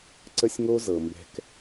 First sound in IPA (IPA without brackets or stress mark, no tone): ǀ